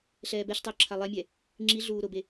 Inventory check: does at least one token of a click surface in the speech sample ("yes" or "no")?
yes